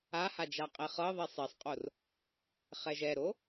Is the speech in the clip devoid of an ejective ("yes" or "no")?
no